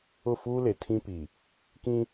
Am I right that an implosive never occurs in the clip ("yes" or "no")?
yes